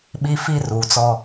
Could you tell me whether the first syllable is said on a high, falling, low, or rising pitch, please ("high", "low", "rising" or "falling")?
high